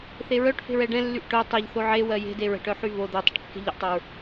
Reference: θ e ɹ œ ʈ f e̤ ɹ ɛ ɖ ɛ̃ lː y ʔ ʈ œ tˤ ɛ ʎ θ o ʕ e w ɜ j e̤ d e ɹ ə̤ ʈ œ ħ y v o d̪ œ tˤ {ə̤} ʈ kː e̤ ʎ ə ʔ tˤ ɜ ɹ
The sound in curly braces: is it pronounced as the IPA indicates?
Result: yes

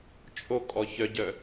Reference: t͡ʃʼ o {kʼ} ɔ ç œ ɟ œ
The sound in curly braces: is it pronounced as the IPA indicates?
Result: yes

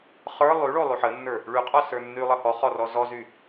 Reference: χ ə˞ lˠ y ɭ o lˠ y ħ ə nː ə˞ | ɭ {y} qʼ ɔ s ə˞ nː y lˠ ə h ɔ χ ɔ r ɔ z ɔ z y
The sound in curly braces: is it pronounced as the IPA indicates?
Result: yes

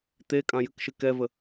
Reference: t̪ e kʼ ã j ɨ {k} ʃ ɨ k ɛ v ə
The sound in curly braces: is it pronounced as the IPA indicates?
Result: yes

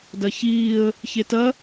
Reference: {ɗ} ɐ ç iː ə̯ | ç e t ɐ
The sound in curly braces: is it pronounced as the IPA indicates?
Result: no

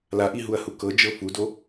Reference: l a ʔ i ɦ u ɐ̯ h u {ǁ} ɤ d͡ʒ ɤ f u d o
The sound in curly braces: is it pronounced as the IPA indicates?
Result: no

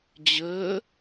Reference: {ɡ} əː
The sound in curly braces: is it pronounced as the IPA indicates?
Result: no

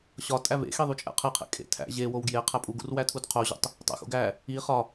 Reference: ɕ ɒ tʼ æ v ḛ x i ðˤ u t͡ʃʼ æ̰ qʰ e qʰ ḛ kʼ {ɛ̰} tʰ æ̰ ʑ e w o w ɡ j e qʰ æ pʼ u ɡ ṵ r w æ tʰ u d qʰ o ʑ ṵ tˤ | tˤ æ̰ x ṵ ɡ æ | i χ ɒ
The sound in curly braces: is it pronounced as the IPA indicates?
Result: no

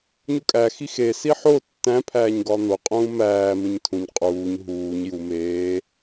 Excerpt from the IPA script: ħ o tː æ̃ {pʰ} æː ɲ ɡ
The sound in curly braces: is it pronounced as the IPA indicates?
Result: yes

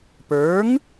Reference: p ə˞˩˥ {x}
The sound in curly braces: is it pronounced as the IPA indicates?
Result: no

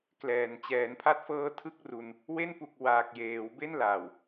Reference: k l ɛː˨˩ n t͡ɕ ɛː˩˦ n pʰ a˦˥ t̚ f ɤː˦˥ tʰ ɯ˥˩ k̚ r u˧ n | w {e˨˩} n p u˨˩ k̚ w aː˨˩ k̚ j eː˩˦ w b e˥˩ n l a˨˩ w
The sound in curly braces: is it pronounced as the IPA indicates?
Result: no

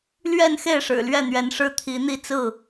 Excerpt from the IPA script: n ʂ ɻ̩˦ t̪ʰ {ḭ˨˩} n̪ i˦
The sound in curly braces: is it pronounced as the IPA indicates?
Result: no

